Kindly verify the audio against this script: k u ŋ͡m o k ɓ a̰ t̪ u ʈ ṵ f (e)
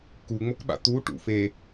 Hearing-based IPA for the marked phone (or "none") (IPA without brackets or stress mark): e